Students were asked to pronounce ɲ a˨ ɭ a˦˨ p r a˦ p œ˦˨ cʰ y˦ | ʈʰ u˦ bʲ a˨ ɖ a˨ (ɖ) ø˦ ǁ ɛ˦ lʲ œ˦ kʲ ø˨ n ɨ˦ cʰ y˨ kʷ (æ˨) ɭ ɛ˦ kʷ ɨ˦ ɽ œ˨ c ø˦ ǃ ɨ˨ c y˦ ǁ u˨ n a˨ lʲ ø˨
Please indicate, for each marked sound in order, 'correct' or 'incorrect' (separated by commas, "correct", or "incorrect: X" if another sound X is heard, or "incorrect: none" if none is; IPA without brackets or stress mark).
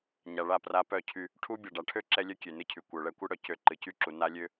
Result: incorrect: ʈʰ, incorrect: œ˨